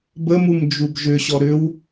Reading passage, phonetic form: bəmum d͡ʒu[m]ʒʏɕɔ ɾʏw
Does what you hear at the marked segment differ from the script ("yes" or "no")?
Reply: yes